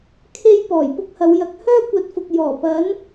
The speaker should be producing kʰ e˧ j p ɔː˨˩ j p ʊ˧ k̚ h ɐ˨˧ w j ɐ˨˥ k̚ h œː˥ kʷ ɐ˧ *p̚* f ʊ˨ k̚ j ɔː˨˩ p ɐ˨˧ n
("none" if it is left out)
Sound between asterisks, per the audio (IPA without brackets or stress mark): t̚